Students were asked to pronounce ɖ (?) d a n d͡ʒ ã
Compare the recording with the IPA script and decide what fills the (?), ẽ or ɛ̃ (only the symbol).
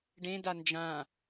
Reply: ẽ